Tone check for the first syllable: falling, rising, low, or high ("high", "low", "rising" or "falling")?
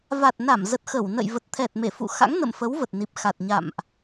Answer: low